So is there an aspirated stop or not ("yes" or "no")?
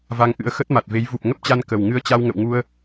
no